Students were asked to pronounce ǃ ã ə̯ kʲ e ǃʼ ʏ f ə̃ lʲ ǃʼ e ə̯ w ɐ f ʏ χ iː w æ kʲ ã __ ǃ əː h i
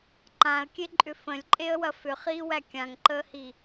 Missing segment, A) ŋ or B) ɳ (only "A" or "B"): A